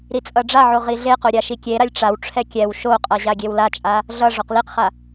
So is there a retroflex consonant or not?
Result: yes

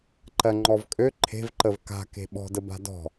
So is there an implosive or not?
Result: yes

